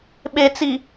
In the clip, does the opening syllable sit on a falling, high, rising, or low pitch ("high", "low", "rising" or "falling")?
low